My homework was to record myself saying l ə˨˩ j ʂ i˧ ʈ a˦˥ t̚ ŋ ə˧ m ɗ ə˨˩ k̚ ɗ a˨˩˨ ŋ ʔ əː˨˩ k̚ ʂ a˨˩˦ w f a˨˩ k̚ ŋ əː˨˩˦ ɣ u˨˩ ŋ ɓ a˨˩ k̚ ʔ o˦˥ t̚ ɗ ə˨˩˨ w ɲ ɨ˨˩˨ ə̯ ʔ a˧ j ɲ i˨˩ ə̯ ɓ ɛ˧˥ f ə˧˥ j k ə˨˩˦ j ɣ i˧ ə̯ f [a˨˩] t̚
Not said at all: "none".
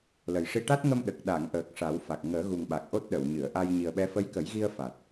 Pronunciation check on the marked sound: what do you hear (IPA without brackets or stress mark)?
a˨˩